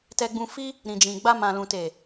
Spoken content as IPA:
t ɛ˧ ɡ͡b ũ˧ f i˦ | ɾ ĩ˨ d͡ʒ ĩ˨ ɡ͡b a˧ m ã˨ l ũ˨ t e˨

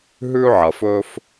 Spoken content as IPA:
ɦ ʉ˥ ʕ ɐ˩ f ɵ˥ f

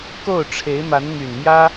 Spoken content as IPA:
k o˥˩ ʊ̯ ʈ͡ʂʰ e˧˥ ɪ̯ m a˧˥ n m y˨˩ n m j ä˥

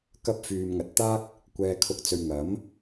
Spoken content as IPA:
k ɐ˧ p̚ f yː˨ m ŋ ɐ˨ t̚ t̪ aː˥ k̚ | kʷ ɛː˨ kʰ ʊ˨˥ k̚ t͡s ɵ˨ ɥ ŋ ɐ˨˥ m

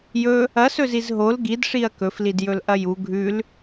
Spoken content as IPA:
j ɵ | ɐ s ɵ z i z ɦ o l ɡ i d ʂ i ɐ̯ k ɵ f l i d j ɵ l ʔ ɐ j u ɡʱ ʉ l

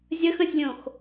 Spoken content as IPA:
zʲ ə x ə̃ sʲ lʲ õ x

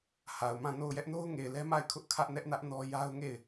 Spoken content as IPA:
h a˨ ʊ̯ m ã˦˨ n o˦˨ ʊ̯ j ɛ˦ ʔ n o˦ ʊ̯ ŋ e˨ ɪ̯ l ɛ˦ m a˦˨ ɪ̯ kʰ ʊ˦ ʔ kʰ ä˦ ʔ n ɛ˦ ʔ n ä˦ ʔ n ɔ˦ j a˦ ʊ̯ ŋ e˦˨ ɪ̯

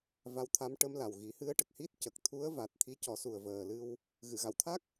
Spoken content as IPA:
v a˧˥ w t̪ʰ a˧˥ m ʈ ə˧˥ m l a˨˩ w ɣ i˨˩˦ h ɨ˧˥ ə̯ ʈ ə˨˩ k̚ h i˦˥ t̚ c ə˨˩ k̚ t̪ʰ u˧˥ ə̯ v a˨˩ t̚ t̪ʰ i˧˥ c ɔ˨˩˦ s u˨˩ ə̯ v əː˨˩ l ɨ˧ w | ɣ ɨ˨˩˨ ɣ a˨˩˨ w t̪ʰ a˦˥ k̚

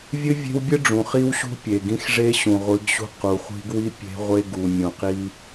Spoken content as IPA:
vʲ ɨ˦ vʲ e̤˦ w bʲ ɨ˦ ɖ͡ʐ ũ˨ χ i˦ w ɕ ṳ˦ pʲ e˨ ɡ ĩ˦ x ʐ e˦ ɕ ũ˨ ʁʷ ɨ˨˦ ɡ ɕ ṳ˦ q u˨ χʷ i̤˦ ɡ w i˦ pʲ e̤˦ ʁʷ e˦ ɡ u˨ mʲ ũ˨ q i˦

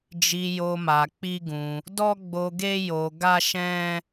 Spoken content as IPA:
d͡ʒ i˧ j o˧ m a˧ k͡p i˦ ɡ ũ˧ | d ɔ˦ ɡ͡b o˧ ɡ e˦ j o˧ ɡ a˦ ʃ ɛ̃˦

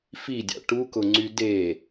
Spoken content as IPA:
f i dʲ ɑ̰ ʈ u k ʊ ŋ͡ǀ y d e

